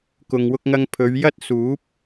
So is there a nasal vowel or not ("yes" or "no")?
no